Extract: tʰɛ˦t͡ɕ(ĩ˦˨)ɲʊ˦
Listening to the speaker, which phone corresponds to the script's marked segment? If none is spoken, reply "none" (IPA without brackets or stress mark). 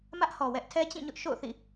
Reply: ĩ˦˨